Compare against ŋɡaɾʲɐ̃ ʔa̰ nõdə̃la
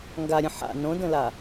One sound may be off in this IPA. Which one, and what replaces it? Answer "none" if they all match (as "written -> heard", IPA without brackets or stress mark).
ʔ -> ħ